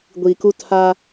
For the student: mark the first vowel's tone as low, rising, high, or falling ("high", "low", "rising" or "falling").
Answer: low